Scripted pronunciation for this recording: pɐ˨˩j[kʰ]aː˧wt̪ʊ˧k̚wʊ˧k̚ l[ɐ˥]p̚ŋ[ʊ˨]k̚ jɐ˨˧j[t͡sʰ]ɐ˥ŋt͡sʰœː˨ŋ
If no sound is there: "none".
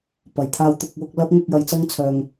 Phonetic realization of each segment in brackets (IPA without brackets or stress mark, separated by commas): t̪ʰ, ɐ˥, ʊ˧, t͡s